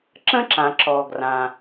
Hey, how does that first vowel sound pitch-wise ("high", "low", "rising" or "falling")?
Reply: high